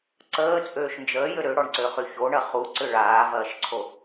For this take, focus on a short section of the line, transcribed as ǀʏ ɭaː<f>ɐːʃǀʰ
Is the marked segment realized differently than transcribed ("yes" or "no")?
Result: yes